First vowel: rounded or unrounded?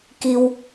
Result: unrounded